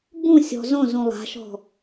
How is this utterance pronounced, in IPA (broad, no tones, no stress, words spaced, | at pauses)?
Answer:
bũsʲɔ̤ zõzũ lˠa̤ʃɔ̤